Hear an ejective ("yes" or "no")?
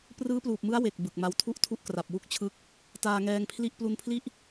no